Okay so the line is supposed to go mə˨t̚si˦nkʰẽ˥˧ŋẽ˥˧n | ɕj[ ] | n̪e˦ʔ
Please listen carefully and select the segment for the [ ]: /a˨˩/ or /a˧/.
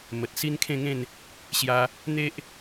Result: a˧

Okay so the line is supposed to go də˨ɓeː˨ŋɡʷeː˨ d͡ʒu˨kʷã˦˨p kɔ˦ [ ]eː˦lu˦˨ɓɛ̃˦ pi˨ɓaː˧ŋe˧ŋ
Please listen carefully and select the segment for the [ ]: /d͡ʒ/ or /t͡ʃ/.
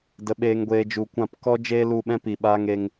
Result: d͡ʒ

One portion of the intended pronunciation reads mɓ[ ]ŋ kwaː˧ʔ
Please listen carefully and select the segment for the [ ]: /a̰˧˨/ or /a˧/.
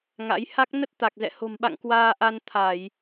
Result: a̰˧˨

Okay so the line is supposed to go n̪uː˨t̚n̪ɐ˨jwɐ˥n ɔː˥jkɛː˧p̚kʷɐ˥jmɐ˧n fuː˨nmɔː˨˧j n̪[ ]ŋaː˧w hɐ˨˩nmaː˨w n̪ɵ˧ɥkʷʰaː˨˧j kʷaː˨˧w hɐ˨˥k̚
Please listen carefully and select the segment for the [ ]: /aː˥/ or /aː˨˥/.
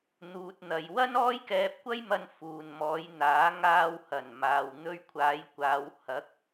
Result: aː˨˥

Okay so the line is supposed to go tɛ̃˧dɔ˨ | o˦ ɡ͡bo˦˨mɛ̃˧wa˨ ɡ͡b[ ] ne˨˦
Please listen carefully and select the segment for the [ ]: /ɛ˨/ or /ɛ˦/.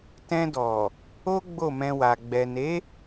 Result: ɛ˨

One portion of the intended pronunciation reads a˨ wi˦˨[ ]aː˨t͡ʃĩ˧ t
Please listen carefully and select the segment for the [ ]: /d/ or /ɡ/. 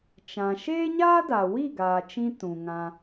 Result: ɡ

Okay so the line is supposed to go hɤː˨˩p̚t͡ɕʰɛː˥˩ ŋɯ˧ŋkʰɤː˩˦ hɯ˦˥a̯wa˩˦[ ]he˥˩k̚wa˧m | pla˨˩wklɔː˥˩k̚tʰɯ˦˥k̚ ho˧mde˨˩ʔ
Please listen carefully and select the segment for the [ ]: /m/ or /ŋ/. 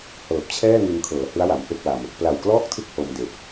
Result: m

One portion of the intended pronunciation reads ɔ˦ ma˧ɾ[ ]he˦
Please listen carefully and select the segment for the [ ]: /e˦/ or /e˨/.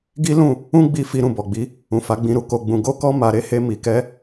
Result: e˦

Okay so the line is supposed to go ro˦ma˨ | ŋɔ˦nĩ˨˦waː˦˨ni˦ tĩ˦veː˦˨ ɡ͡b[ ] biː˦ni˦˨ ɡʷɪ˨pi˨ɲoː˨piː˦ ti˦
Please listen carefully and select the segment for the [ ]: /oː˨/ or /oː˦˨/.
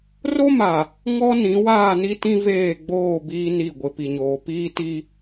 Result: oː˦˨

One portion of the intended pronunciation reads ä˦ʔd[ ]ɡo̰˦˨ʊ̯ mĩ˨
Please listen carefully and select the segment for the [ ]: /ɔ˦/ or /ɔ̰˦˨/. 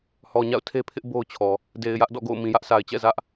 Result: ɔ̰˦˨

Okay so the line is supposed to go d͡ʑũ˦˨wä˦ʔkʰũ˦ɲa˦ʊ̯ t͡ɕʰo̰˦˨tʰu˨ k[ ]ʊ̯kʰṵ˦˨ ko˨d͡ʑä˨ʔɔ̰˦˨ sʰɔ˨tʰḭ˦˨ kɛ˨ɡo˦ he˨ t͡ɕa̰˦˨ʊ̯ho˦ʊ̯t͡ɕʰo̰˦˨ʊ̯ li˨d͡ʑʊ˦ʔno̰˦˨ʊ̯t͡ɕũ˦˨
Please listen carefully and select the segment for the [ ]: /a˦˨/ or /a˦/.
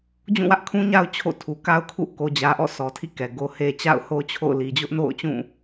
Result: a˦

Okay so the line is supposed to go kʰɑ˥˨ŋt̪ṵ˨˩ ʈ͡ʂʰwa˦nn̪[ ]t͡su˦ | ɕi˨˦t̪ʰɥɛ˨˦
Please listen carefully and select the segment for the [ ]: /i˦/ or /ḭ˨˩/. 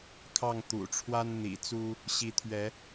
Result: ḭ˨˩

